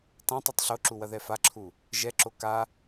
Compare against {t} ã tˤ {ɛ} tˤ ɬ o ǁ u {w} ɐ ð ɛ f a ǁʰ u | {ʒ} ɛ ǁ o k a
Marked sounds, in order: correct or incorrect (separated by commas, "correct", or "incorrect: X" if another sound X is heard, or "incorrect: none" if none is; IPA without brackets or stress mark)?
correct, incorrect: ɨ, correct, correct